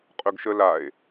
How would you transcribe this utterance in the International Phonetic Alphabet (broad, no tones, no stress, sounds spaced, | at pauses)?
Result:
qʼ ɵ ɡ ʃ ə l a e̯